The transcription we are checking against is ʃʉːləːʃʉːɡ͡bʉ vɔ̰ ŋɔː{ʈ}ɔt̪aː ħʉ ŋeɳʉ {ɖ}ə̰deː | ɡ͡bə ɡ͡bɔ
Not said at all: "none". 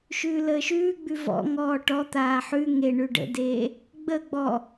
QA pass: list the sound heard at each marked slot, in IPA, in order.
ʈ, ɖ

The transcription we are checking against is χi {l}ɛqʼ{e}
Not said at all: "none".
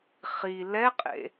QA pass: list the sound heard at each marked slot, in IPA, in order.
l, ḛ

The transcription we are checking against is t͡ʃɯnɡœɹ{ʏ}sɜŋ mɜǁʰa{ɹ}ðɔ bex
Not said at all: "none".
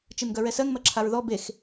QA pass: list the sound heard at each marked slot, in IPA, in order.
ɛ, ɹ

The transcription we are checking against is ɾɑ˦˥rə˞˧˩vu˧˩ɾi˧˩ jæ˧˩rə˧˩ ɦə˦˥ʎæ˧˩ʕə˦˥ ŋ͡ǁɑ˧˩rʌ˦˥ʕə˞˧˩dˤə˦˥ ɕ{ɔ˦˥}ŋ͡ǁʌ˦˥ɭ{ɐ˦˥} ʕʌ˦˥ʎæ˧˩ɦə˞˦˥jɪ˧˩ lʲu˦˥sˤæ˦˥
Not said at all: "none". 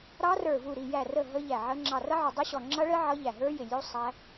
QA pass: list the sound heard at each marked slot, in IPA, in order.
ɔ˧˩, ə˦˥

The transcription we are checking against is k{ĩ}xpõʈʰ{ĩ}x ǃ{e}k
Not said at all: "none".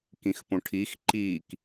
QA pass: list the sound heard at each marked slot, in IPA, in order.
ĩ, i, i

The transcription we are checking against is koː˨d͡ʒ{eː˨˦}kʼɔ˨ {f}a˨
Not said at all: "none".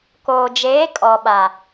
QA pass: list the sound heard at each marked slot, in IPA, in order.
eː˨˦, ɓ

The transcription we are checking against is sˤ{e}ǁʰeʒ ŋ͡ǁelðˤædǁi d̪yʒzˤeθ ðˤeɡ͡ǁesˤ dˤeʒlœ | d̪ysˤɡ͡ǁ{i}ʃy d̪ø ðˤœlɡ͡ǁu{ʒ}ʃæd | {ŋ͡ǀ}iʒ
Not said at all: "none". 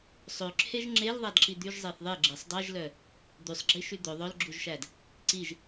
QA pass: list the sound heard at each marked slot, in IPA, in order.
ø, i, ʒ, ǀ

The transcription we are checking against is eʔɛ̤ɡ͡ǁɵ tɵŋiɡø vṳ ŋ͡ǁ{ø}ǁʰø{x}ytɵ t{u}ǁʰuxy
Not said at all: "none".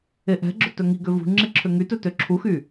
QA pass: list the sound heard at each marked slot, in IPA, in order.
e, ŋ, ø

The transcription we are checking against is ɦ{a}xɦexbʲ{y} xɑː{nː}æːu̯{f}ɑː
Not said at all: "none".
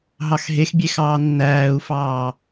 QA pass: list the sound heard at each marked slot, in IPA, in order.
ɑ, e, nː, f

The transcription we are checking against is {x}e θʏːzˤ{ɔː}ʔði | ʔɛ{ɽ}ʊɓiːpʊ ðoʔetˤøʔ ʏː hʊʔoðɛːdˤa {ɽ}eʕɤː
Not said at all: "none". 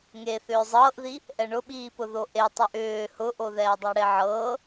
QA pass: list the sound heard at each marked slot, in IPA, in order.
ŋ, ɤː, ɳ, ɽ

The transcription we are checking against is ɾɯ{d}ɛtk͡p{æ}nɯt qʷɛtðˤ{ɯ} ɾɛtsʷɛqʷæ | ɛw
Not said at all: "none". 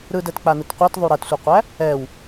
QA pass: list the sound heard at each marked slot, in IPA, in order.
d, a, u

